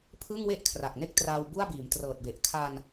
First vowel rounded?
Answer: no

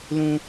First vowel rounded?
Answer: yes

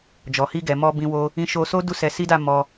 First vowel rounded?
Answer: yes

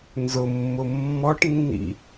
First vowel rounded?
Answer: yes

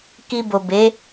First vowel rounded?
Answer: no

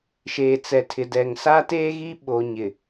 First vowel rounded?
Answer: no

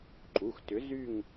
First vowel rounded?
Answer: yes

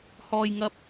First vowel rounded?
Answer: yes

